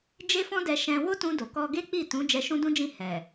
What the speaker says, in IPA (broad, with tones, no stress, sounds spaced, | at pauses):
d͡ʒ e˦ f ɔ̃˦ d ɛ˧ ʃ ɛ̃˧ w o˦ t ũ˧ d o˨ k ɔ˧ ɡ e˦ k͡p i˦˨ t ũ˨˦ d͡ʒ ɛ˧ ʃ ũ˦ d ũ˦ d͡ʒ ĩ˦˨ h ɛ˨